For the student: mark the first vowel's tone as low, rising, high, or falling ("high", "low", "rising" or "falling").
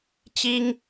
high